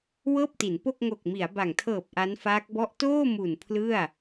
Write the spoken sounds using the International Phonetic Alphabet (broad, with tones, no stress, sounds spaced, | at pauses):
w ɤː˥˩ p̚ t i˩˦ n p o˥˩ k̚ ŋ o˨˩ k̚ m i˩˦ a̯ b a˨˩ ŋ tʰ ɤː˨˩ p̚ ʔ a˦˥ n f aː˦˥ k̚ b ɔ˥˩ ʔ t oː˥˩ m u˨˩ n pʰ l ɯ˥˩ a̯